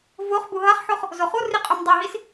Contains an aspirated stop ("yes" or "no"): no